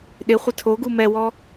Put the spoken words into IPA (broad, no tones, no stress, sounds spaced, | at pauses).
ɗ ɪ χʷ ɪ tʰ o ɡ u m ɛ w ɔ